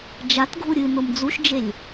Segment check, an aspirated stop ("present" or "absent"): absent